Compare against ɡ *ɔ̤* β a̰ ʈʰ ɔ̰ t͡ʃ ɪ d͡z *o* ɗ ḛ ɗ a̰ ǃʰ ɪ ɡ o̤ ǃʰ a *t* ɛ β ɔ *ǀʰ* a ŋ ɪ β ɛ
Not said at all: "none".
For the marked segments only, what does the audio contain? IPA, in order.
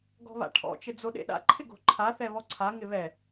ɔ̤, o, θ, ǀʰ

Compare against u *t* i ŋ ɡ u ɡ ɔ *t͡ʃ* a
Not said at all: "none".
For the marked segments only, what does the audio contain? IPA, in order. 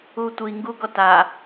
tʷ, t

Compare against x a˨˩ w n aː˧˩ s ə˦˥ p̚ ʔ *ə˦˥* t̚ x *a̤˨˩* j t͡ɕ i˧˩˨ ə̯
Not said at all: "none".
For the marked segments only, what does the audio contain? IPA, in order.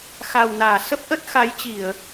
ə˦˥, a˨˦

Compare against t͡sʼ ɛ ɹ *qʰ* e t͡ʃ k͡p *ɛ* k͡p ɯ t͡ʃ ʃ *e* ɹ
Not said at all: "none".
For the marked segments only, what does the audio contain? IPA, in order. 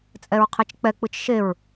qʰ, ɛ, e

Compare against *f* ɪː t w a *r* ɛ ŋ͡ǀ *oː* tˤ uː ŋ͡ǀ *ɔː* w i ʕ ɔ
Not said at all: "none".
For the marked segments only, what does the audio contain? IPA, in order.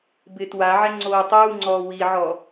b, ʕ, oː, ɔː

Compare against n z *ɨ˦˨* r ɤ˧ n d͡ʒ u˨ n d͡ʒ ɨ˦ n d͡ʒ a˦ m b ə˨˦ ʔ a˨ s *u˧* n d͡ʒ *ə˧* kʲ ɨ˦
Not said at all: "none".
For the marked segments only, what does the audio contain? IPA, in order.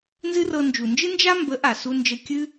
ɨ˦, u˧, ə˧

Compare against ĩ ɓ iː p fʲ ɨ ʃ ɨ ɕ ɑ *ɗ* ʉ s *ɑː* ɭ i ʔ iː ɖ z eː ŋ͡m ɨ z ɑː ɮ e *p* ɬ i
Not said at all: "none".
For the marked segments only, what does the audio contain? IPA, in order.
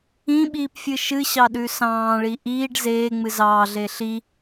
ɗ, ɑ̃ː, none

